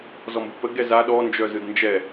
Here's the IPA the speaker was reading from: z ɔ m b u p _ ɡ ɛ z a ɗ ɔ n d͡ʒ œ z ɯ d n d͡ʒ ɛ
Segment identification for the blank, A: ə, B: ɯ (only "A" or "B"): A